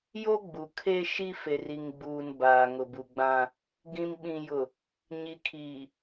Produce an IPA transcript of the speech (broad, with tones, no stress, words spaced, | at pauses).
jo˦ɡ͡bu˨kʰe˦ʃi˦ fe˨ri˨ŋɡ͡buː˨n baː˨ŋʊ˨bu˨ ɡ͡bã˦ | ɡĩ˨m ɓĩ˨jʊ˨ | ɲi˨ kʰiː˨